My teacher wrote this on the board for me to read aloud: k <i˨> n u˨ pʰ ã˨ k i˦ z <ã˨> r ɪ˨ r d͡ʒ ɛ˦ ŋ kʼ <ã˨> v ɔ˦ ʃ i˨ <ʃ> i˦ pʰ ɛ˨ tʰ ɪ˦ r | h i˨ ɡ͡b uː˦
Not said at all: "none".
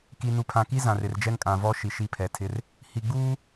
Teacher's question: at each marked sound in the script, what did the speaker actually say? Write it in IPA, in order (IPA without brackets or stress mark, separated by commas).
i˨, ã˨, ã˨, ʃ